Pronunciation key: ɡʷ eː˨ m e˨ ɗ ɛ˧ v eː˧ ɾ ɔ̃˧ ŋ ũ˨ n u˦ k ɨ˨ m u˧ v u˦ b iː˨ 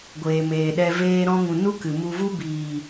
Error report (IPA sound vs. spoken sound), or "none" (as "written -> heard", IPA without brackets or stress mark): e˨ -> eː˨